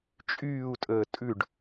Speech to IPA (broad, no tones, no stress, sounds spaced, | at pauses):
t͡ʃʼ yː u̯ tʼ əː tʼ ʉ ɖ